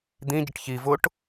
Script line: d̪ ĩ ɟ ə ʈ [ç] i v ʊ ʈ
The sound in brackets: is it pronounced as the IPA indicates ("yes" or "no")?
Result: yes